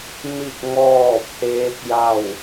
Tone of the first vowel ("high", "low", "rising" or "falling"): falling